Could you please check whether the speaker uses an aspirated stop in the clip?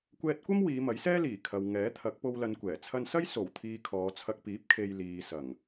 yes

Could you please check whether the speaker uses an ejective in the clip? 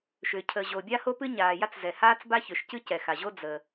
no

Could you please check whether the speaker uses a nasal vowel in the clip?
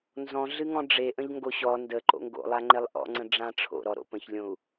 yes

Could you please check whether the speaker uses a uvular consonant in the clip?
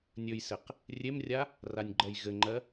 yes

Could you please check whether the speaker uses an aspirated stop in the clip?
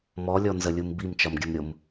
no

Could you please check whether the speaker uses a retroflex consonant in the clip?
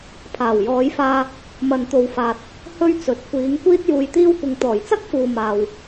no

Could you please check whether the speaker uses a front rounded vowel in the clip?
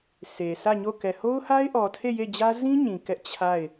no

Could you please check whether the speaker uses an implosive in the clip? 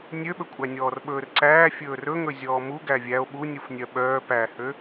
yes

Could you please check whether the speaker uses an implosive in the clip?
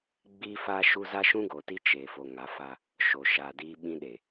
yes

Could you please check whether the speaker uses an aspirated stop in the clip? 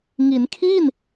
yes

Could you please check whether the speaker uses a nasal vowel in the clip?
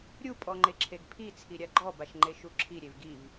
no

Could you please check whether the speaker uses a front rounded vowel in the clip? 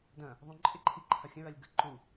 no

